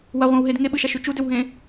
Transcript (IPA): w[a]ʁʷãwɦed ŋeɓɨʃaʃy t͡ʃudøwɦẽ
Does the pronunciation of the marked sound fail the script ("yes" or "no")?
no